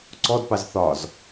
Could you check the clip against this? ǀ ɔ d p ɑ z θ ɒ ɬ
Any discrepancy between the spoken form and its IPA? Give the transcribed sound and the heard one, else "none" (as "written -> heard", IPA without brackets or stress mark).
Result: ɬ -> z